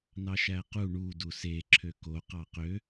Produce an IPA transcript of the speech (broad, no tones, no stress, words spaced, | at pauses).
nɑʃæqu ɳudu se ǁʰøko qɑqø